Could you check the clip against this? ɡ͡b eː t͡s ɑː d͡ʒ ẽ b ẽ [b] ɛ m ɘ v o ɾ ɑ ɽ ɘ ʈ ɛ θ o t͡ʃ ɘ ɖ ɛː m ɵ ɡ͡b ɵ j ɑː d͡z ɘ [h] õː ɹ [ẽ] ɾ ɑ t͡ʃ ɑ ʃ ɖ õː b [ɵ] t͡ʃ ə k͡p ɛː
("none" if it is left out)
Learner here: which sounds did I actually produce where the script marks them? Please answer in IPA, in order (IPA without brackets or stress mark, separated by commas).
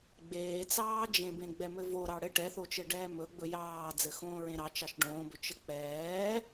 ɡ͡b, x, ẽ, ɵ